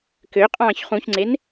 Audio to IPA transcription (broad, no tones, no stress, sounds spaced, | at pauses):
k ø qʼ ɑ̃ː ç χ ũ ç ŋ͡ǀ e n